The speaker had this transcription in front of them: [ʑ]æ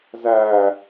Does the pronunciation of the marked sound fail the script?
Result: yes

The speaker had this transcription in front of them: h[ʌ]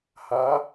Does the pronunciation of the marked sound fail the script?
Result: yes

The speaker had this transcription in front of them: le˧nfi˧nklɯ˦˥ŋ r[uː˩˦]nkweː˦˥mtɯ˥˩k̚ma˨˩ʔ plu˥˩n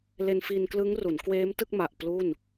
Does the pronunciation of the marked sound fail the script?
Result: yes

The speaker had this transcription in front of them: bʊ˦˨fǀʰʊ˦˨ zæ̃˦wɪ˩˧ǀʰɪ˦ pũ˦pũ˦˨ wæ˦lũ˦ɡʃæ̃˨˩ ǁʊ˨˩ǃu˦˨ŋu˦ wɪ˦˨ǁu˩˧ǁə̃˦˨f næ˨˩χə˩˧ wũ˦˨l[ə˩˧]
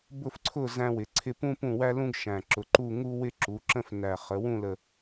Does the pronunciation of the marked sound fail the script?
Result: yes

